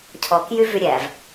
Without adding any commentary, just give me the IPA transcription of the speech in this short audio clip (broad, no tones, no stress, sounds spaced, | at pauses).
cʰ ɔ k j y v y ɾʲ æ v